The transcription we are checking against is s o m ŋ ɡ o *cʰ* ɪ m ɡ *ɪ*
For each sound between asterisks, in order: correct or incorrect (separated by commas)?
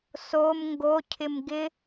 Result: correct, correct